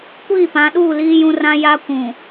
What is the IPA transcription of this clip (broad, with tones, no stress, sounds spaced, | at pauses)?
kʷ iː˦˨ p ã˨˦ ɗ uː˦˨ l iː˦ j ũ˦ r ã˦ j a˦ kʷ ũ˨